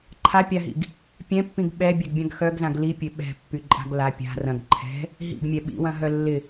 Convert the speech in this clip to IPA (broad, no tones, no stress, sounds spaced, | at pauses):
ǃʰ a pʲ a ɦ ḭ ɡ | pʲ ɛ̃ pː ĩ ɡ ɓ ɛ bʲ ɛ ɡ bʲ ã ɡ x œ ɡ z ã ɡ l i pʲ ø ɓ ɛ̤ pː y ǃʼ a̤ ɡ l a pʲ a̤ r ɐ̃ ɡ ǃʰ ɛ̤ | ɦ ḭ ɡ mʲ ɛ ɓ ḭ w ɐ̃ ɦ œ lː ɪ